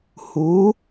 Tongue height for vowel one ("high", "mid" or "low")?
high